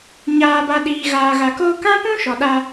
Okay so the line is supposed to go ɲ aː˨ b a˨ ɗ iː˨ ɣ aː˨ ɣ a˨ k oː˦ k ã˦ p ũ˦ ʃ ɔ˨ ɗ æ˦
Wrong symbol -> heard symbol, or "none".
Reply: æ˦ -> a˦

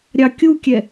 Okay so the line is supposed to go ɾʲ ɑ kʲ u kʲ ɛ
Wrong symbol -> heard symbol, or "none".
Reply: none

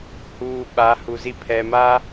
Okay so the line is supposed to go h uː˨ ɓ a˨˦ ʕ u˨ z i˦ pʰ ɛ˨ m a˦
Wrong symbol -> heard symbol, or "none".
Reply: ʕ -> h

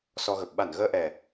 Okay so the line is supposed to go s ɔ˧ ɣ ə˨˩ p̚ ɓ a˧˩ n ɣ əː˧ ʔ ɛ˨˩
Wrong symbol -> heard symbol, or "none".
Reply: none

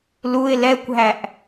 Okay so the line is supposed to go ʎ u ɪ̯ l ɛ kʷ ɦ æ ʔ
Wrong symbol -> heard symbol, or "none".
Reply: ʎ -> l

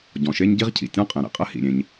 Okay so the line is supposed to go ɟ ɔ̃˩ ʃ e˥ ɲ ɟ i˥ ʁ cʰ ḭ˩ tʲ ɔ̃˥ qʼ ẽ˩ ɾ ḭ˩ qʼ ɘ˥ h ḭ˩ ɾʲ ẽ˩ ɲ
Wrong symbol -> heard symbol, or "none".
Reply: none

